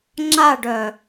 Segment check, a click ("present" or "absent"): present